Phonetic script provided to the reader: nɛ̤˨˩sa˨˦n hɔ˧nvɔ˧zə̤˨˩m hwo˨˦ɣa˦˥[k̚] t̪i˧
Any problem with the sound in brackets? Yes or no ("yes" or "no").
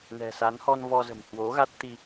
yes